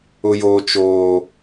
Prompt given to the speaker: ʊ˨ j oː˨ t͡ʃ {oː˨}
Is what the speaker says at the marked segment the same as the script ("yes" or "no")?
yes